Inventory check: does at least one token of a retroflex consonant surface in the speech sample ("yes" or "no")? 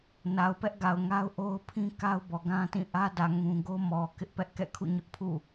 no